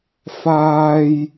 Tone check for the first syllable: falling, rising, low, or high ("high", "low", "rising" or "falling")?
high